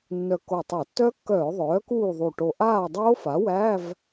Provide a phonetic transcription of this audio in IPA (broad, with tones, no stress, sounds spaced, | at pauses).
nː œ˧˩ kː o˧˩ tˤ o˧˩˧ tː œ˦˥ kː œː˧˩˧ ðˤ œː˩˥ k uː˥˨ ðˤ u˧˩ ʈ o˧˩ ʔ aː˥˨ dˤ oː˦˥ f a˩˥ w æ˧˥˧ v